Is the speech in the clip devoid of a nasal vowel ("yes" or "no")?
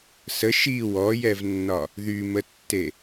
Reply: yes